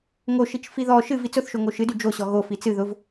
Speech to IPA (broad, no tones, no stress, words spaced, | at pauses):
ŋo ʃit͡ʃfiðɔ ʃɨv it͡sʊθ ʃoŋoʃɨdy d͡ʒoɕɔ ɣo fit͡sɨ ðʊv